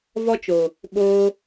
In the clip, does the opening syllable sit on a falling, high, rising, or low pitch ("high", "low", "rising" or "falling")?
high